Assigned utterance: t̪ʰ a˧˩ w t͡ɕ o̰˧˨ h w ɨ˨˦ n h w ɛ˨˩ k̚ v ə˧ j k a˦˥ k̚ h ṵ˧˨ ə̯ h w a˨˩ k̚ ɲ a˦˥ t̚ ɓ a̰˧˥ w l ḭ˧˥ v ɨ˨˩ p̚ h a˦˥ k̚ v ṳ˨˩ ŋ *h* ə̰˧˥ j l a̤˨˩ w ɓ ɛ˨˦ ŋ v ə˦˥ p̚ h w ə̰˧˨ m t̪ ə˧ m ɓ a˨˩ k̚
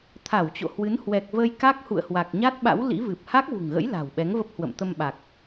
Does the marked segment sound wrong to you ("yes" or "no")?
yes